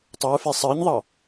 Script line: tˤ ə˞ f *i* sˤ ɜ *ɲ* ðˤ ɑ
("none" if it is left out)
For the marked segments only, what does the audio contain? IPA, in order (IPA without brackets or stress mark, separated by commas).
e, ɲ